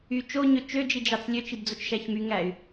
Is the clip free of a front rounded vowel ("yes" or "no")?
no